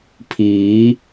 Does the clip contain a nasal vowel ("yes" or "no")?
no